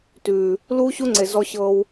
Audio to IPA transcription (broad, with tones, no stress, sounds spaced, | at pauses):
t ʉː˨ | l uː˦ ɕ u˦ ŋ͡ǀ e˨ z ɔ˧ ɕ ɤː˧ w